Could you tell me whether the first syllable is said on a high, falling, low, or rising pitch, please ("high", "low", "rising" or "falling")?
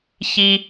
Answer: high